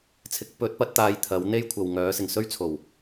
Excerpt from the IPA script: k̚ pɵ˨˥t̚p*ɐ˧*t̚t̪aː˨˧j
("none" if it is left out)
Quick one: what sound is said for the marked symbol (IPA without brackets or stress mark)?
ɐ˨˥